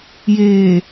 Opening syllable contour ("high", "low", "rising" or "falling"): low